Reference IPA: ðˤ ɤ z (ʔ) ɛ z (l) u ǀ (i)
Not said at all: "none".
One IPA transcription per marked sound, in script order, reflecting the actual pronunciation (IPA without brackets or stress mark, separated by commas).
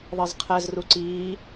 qʰ, r, iː